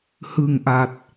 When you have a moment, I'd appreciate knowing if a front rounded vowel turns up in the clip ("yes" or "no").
no